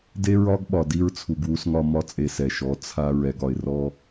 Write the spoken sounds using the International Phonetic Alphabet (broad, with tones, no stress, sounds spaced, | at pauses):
d e˦ ɹ ɒ˦ ɡ ɓ ɒ˨ d i˧ ɹ t͡sʰ u˨ ɡ w u˧ s ŋ ɒ˧ m ɒ˦ t͡sʼ e˧ s ɛ˨ ʃ ɔ˨˦ t͡sʰ a˧ ɹ ɛ˨ ɡ ɒ˨ ɪ̯ r ɔ˧